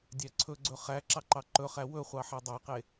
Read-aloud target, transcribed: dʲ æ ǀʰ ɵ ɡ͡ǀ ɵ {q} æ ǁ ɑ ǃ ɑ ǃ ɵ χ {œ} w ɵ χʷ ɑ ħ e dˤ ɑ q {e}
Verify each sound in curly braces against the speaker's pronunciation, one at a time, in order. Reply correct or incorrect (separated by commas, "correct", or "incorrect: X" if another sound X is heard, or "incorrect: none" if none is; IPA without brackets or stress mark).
incorrect: χ, incorrect: æ, correct